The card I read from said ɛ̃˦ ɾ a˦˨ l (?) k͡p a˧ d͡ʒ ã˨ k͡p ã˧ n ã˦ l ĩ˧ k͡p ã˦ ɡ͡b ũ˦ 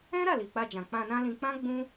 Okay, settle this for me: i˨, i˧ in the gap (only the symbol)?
i˨